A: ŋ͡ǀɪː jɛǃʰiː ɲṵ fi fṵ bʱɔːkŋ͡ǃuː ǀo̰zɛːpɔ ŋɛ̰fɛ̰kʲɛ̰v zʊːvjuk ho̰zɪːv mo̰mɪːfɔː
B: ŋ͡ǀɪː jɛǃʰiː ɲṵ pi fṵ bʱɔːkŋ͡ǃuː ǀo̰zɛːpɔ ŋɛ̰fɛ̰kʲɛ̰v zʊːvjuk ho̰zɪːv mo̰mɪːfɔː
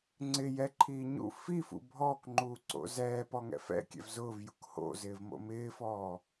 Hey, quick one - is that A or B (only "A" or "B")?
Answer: A